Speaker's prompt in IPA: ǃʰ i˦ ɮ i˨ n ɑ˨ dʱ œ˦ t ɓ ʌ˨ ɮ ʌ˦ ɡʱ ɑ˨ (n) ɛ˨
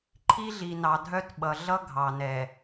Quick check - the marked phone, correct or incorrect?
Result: correct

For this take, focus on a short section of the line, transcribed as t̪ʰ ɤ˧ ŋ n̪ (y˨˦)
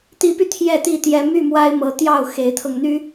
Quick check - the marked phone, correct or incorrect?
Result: incorrect: y˦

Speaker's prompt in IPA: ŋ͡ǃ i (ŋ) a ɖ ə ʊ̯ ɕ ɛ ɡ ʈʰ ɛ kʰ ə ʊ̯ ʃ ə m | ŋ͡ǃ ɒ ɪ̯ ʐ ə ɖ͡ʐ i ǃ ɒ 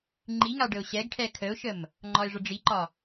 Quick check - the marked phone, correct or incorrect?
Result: correct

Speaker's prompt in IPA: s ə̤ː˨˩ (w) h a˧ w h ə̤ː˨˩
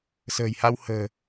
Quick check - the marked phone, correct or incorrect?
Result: incorrect: j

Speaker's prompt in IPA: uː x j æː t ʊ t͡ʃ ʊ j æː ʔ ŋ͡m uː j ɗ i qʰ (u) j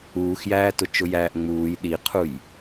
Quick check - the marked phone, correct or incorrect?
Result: correct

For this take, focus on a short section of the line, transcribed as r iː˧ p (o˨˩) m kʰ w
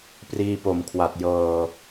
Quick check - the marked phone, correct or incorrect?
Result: correct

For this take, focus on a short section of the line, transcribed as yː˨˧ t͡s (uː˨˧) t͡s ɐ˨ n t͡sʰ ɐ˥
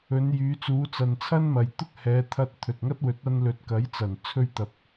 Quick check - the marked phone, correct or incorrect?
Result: correct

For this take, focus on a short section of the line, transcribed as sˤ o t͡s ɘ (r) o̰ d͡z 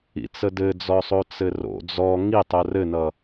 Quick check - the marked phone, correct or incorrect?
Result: correct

